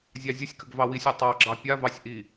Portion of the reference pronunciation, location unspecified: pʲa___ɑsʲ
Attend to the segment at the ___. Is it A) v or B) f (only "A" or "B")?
A